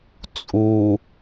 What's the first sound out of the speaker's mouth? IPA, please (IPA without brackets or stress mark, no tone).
t͡sʼ